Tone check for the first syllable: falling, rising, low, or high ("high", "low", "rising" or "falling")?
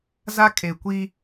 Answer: high